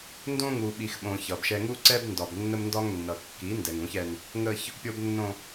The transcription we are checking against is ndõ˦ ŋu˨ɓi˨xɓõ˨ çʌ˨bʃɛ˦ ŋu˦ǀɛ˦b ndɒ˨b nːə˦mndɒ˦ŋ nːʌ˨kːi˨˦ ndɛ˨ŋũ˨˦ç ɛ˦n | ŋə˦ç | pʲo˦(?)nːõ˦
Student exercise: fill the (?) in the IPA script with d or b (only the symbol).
b